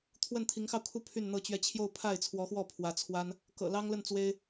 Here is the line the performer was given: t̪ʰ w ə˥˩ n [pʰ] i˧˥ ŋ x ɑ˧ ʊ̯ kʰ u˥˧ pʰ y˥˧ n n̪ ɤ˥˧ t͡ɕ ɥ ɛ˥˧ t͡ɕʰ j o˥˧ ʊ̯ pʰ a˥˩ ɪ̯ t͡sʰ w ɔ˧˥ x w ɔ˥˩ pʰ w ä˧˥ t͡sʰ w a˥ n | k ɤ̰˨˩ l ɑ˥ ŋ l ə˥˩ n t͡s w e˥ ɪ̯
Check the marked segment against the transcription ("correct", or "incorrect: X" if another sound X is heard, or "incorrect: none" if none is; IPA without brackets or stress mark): incorrect: t̪ʰ